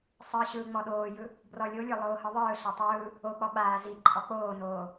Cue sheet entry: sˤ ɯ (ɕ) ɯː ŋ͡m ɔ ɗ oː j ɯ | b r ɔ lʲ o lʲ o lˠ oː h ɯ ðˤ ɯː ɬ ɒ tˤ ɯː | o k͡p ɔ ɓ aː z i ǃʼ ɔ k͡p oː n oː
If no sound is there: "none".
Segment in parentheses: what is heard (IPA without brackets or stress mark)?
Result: ɕ